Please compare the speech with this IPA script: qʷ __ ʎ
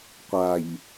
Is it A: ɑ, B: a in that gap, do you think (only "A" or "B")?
B